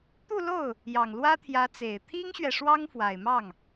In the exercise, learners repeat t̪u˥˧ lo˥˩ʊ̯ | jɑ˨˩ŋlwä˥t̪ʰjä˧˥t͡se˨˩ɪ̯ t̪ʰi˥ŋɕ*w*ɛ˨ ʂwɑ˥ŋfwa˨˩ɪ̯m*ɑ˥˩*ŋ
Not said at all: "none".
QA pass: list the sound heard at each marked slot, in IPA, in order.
ɥ, ɑ˥˩

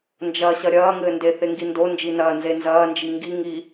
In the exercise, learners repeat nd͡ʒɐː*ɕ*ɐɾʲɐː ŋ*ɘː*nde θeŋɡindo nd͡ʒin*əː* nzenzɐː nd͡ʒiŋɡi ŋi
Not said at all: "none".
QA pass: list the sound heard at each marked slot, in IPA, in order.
ɕ, ɘː, ɐː

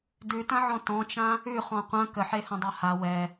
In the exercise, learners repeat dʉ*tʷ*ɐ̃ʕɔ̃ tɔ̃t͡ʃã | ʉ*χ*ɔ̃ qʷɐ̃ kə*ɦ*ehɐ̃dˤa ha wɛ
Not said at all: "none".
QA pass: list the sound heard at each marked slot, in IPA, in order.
t, χ, ħ

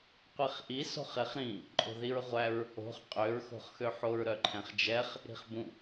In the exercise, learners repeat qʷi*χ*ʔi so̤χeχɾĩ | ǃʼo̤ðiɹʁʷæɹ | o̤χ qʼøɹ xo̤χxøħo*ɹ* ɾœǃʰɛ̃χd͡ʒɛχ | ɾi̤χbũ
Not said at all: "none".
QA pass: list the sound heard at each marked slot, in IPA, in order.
χ, ɹ

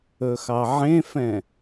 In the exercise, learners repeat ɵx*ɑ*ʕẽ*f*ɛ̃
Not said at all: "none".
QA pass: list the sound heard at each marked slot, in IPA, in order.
ɑ, f

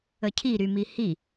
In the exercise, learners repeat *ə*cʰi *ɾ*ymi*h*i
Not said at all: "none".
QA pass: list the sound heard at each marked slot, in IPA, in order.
ə, ɾ, h

